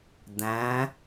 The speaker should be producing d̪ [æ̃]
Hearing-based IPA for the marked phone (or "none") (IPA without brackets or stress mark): æ̃